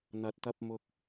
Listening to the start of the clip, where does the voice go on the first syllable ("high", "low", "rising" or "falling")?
low